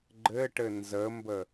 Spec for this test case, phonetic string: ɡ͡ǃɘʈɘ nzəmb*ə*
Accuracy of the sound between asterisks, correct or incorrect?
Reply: correct